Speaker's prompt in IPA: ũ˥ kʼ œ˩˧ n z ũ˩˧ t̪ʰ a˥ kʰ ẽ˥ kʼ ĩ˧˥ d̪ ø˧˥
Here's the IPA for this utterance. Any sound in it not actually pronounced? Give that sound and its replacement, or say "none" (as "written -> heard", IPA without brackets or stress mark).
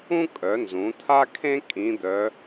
ø˧˥ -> œ˧˥